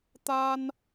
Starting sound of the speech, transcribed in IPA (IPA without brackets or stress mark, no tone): t̪